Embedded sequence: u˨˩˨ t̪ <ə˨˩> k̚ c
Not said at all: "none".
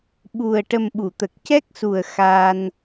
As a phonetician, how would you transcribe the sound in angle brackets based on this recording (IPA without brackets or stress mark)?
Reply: ə˨˩